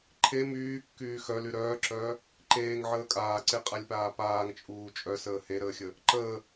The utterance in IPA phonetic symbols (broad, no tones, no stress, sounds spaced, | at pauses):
ǃʰ e m yː kː yː x œ l y ɾ œː ǁ œː | ǃ eː ŋ ʕ əː kʼ aː ǀ e qʼ a lʲ p aː p aː ŋ t͡ʃʼ uː t͡ʃʼ œ s əː h e ɾ əː xʲ ə | ǃ əː